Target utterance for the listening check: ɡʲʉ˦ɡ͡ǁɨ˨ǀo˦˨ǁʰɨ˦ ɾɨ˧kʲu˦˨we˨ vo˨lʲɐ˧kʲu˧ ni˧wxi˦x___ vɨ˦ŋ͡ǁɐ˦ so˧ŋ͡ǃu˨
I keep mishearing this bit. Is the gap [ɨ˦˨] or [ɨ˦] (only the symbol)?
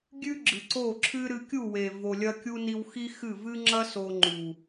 ɨ˦˨